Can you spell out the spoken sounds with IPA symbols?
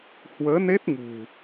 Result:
h w əː˨˦ n e˦˥ t̚ ŋ ṳ˨˩

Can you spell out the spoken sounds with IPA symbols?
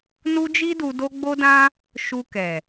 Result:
n u˦ d͡ʒ i˦ d u˧ d o˦ ɡ͡b o˦ d ã˦ | ʃ u˧ k ɛ˨

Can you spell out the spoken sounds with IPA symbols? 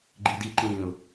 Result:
ɡ͡ǃ i d i ǃ ĩː ʊ̯

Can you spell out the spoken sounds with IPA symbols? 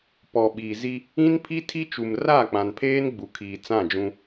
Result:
p ɔ˨ ɓ iː˨ z i˦ | ĩ˦ n pʰ i˦ tʰ i˦ t͡ʃ u˨ m r a˦˨ k͡p ã˨ n pʰ eː˦ n ɡ͡b u˨ kʰ iː˨ t͡s ã˦˨ d͡ʒ ũ˦

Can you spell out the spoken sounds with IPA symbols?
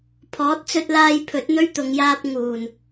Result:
pʰ ɔː˨˥ t̚ t͡s ɵ˧ t̚ l aː˧ j pʰ ɵ˨˥ t̚ n̪ ɵ˥ ɥ t̪ ʊ˨˧ ŋ j aː˥ p̚ ŋ uː˨˩ n

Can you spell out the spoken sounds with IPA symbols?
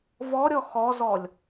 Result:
v ɔ ɾʲ ɔ x ɔ z ɔ lʲ

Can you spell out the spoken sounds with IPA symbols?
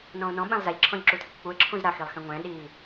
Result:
n ɔ̃ ʊ̯ n ɔ̃ ɓ ɛ̃ lˠ z a ʎ ǁʰ ɔ̃ ʎ ǁ u tʰ ə kʷ k͡p u ɪ̯ ǁʰ ũ z ɾ a x i lˠ x ɛ̃ ŋʷ ɛ̃ ɗ i

